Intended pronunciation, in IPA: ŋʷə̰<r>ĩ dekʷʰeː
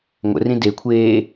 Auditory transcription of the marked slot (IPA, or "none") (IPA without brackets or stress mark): r